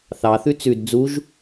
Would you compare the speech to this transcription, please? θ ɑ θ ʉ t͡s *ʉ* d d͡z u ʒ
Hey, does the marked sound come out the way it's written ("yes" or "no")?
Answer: yes